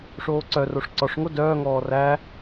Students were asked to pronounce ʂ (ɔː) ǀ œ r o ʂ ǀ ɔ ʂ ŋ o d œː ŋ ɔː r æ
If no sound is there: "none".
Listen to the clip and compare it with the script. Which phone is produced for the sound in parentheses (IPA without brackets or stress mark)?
oː